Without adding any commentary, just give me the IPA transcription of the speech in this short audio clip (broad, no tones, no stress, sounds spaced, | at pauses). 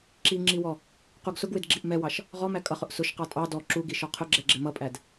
ǁ i ŋ͡ǁ i w ɔ | q u ɡ s ʊ ɡ w ɪ d ɡ͡ǁ i ʔ m ɛ w ɑ ʃ | ʁ ɔ m æ kʼ ʌ χ ʊ ʔ s ʊ ʃ q ɑ tʼ ɑ d ɔ ǁ u ɡ i ʃ ɔ qʰ ʊ ɡ͡ǁ ɛ ɡ͡ǁ ɪ m ʌ pʼ æ d